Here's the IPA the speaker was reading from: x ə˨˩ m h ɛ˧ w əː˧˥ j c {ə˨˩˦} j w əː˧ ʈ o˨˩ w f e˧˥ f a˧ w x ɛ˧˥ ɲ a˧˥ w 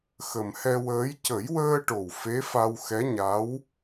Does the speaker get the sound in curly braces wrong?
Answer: no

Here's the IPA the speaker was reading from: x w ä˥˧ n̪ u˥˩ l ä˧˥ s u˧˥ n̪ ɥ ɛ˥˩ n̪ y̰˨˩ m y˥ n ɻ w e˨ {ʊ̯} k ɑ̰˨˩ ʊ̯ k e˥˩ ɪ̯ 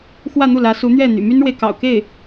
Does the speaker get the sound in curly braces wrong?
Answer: yes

